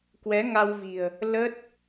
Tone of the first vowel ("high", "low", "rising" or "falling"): rising